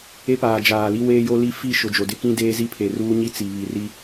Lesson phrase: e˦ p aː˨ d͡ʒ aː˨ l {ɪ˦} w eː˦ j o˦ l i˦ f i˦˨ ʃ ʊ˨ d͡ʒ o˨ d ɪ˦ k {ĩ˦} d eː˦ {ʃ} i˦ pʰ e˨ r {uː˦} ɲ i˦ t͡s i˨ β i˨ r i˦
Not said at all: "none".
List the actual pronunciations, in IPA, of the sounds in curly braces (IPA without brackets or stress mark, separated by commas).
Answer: i˦, ĩ˦, z, uː˦